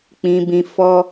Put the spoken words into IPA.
k͡pĩ˧bĩ˧ fɔ˦

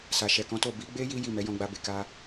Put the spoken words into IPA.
sa˨ʃɛ˨kɔ̃˨˦to˦˨ bi˨˦ɡ͡be˦ ji˦ ji˦˨ mɛ˨˦jɔ̃˧ɡ͡ba˧be˨ ka˧

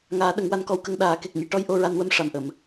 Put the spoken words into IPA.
ŋaː˨˩˦ ɗə˨˩˦ŋwa˧nkɔ˧wkə˧ŋ ɗaː˨˩˦ ke˨˩k̚ɲi˨˩ ʈɔ˧j ʔo˧ɹa˧nwə˧˥m ʂa˨˩mʔə˨˩˨m

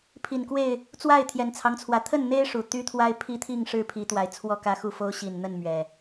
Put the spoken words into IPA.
pʰi˨˩nkwe˥˨ɪ̯ | t͡swa˥˨ɪ̯t̪ʰjɛ˨˩nt͡sʰɑ˦ŋt͡sʰwä˨˦ t̪ʰə˥˨nn̪e˦ɪ̯ ʂu˨˩ t̪y˦t̪ʰwa˦ɪ̯pʰi˦t̪ʰi˥˨ŋ ʂɻ̩˥˨pʰi˨˦ t̪wa˨˦ɪ̯t͡sʰwɔ˥˨kä˦xu˥˨ fo˦ʊ̯ɕi˨˩nn̪ə˥˨n mɥɛ˨˩

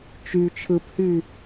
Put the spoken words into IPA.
t͡ʃy t͡ʃʰɯphy

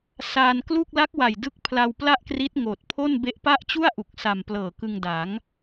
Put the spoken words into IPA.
saː˧n klu˥˩k̚ la˦˥k̚wa˨˩j dɯ˦˥k̚ pʰla˧wpla˥˩ʔkri˦˥t̚ ŋoː˨˩t̚pʰo˥˩n be˦˥ʔpa˥˩ʔ t͡ɕu˥˩a̯ʔu˨˩k̚sa˨˩mplɤː˨˩ kɯ˧ŋda˩˦ŋ

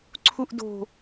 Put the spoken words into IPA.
ǀʰuʔdo̤

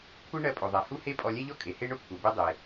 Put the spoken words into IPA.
kʷʰɨ˥ ɳɜ˧pʼo˩ðˤɛ˩ hu˥he˥pʼɔ˧lʲɛ˥ ʎɔ˥kʼe˩ he˥ ɳʊ˥kʷʰɛ˩ be˥dˤe˩

